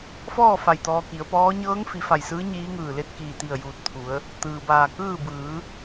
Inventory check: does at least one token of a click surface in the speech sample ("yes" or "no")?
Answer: no